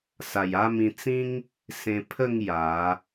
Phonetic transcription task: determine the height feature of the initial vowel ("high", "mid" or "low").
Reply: low